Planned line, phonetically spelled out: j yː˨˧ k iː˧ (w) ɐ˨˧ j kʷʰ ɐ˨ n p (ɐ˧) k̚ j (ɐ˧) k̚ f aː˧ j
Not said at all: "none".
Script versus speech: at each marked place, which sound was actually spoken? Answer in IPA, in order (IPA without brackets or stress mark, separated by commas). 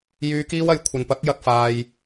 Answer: w, ɐ˨˥, ɐ˧